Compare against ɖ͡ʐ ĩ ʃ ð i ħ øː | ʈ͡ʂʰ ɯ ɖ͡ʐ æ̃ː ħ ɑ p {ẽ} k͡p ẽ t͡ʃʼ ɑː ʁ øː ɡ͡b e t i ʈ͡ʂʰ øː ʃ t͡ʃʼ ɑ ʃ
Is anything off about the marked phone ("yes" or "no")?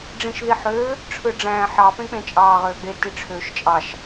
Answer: no